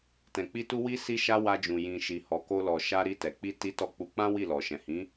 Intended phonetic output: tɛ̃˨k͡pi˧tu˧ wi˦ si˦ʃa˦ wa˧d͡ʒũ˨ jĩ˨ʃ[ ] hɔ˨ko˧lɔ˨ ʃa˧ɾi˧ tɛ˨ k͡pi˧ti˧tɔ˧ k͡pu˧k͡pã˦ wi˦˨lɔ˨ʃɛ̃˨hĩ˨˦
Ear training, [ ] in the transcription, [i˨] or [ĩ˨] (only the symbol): i˨